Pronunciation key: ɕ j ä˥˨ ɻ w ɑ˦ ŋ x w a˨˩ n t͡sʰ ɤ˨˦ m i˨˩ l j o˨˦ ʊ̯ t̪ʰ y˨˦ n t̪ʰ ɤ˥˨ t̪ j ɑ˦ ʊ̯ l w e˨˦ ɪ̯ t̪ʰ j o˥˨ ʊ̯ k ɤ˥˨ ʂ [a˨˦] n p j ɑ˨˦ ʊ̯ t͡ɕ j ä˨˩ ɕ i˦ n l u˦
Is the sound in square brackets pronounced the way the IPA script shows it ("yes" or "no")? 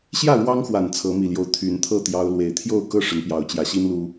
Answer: no